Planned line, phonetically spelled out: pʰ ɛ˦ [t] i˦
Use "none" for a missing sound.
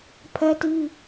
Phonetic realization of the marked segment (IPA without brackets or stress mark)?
t